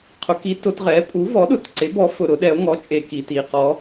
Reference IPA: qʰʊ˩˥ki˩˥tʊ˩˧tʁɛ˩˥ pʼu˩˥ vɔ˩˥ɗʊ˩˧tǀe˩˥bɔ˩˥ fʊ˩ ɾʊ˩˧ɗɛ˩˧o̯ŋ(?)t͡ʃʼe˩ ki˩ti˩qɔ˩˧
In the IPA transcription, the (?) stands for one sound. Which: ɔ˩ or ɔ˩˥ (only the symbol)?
ɔ˩˥